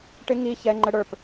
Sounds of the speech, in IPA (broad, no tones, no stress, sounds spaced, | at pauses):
ʈ ɪ ŋ i ç ɛ ŋ͡ǃ ə ɽ ə˞ p